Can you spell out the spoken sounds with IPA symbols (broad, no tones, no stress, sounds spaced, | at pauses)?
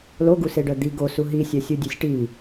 l o ɡ u s e ɖ œ d̪ i ɡ o s u ɦ i sʲ œ sʲ u dʲ ø sʲ ʈ i